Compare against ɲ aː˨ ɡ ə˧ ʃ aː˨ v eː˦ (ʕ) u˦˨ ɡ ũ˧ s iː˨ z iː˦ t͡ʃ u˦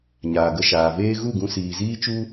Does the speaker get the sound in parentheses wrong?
yes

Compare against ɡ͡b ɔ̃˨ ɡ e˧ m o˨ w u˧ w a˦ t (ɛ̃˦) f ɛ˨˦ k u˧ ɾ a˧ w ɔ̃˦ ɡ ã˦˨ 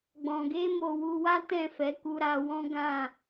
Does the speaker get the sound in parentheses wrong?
yes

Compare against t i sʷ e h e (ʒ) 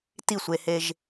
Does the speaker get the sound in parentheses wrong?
no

